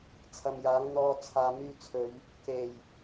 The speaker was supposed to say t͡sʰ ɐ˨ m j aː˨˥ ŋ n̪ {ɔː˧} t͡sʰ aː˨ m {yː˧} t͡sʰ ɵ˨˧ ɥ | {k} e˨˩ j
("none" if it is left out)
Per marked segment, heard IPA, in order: ɔː˧, yː˧, k

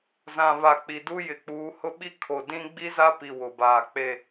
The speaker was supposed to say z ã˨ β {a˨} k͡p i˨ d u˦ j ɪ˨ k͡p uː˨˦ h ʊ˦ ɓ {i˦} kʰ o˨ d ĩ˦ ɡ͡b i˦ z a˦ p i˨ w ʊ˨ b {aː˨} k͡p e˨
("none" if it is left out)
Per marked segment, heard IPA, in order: a˨, i˦, aː˨

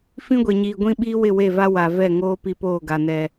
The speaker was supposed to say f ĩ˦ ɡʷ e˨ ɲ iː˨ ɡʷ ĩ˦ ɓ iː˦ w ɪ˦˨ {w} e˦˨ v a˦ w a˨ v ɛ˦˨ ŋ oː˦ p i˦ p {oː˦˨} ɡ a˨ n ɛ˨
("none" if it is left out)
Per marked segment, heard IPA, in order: w, oː˦˨

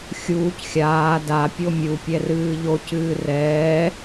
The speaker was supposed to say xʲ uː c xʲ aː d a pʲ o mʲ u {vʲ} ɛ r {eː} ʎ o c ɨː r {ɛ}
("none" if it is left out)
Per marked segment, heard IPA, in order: pʲ, ɨː, ɛː

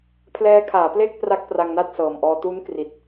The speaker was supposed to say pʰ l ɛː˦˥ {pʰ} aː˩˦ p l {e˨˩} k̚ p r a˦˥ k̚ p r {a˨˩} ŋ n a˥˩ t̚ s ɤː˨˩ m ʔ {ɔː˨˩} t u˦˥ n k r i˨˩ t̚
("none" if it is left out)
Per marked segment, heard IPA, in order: kʰ, e˥˩, a˧, ɔː˧

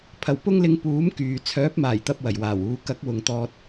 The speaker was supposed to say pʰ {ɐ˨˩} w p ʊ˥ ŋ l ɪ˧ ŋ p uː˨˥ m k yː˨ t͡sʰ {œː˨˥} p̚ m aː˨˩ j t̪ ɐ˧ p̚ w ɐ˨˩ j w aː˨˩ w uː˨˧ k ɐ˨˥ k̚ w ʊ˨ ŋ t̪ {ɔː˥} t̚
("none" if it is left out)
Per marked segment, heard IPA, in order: ɐ˨˩, œː˨˥, ɔː˧

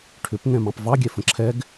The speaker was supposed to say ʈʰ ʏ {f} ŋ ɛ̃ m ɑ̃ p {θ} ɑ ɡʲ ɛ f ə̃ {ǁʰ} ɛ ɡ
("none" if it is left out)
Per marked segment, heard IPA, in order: p, v, ǁʰ

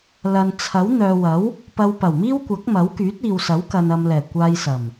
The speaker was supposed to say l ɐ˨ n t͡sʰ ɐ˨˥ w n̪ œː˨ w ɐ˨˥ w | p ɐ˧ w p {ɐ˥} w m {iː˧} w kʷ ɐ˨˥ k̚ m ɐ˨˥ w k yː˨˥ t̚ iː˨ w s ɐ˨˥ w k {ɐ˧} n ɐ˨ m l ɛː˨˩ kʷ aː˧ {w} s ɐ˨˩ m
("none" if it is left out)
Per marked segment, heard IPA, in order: ɐ˨˩, iː˥, ɐ˨, j

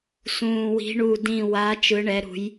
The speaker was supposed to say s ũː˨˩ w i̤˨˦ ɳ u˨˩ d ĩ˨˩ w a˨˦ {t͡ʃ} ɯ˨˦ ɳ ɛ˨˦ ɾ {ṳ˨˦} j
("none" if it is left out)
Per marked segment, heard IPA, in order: t͡ʃ, ṳ˨˦

